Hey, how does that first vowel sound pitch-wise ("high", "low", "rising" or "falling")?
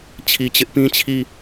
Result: low